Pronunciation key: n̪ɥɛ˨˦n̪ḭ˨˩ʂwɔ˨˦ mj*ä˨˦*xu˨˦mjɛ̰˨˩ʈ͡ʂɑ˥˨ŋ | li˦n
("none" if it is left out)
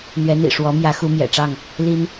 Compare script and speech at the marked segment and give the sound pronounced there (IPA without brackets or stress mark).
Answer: ä˨˦